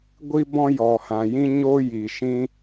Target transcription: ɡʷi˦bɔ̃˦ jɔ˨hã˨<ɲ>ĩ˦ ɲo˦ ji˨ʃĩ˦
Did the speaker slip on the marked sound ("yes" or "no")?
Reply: yes